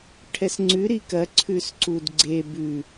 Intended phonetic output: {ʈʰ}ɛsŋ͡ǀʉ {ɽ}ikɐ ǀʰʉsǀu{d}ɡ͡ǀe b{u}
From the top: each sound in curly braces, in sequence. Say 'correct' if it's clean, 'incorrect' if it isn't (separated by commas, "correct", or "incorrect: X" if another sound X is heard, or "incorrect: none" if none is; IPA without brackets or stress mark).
correct, incorrect: ɾ, correct, incorrect: ʉ